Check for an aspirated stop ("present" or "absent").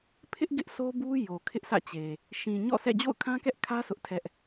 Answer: present